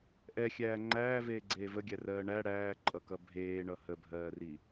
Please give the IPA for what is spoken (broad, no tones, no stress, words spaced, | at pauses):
ʔɛxʲæː ŋ͡ǃæːveːɡ͡ǀeː vəɡʲærɜː ɳæ ɽæːǃʼʌkʌ bʱeːɳʌ həbʱɜːri